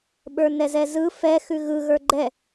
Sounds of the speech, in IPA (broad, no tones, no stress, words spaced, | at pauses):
ɓə˞nɛzɛzɯ fɛ xʉɣɯ ɣə˞ɡ͡ǃɛ